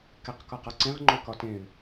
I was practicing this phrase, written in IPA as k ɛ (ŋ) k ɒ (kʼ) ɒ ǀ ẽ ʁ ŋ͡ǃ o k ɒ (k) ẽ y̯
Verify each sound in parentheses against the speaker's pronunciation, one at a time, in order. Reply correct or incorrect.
incorrect: q, incorrect: q, incorrect: t

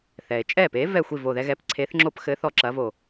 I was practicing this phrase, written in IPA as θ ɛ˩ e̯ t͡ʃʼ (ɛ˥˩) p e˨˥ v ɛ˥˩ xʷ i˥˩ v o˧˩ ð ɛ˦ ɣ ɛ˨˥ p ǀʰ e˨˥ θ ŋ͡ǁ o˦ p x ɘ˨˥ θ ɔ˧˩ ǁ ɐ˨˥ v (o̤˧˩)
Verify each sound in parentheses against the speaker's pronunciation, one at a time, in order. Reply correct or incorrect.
correct, incorrect: o˧˩

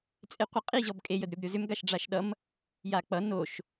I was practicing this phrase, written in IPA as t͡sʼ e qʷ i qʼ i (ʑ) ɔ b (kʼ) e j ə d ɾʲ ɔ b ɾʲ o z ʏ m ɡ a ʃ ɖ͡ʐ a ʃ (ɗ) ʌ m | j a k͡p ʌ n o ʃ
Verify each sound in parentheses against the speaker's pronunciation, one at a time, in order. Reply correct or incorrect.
correct, correct, correct

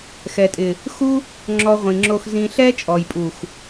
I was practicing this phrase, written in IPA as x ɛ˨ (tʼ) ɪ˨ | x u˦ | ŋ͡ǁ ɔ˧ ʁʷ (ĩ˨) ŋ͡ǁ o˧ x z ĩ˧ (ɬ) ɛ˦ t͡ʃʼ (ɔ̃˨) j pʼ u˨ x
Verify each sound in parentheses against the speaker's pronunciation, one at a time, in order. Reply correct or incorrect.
correct, correct, correct, incorrect: ɔ˨

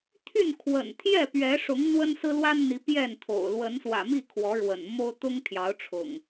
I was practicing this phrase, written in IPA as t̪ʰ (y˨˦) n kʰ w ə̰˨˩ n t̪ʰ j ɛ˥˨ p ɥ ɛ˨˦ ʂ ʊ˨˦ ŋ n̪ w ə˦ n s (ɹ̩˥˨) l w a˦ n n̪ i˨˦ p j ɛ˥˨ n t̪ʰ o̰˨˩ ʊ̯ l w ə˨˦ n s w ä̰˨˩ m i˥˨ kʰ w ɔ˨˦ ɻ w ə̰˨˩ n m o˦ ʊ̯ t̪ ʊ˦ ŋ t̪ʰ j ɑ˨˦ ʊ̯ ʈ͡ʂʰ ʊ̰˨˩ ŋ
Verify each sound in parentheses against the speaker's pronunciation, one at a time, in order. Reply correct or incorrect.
incorrect: y˥˨, incorrect: ɹ̩˦

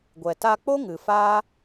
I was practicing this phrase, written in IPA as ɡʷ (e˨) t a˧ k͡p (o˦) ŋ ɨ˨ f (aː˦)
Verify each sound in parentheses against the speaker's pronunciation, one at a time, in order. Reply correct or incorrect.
incorrect: ɛ˨, correct, correct

